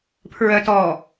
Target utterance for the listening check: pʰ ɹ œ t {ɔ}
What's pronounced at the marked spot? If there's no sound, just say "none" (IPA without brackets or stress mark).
ɔ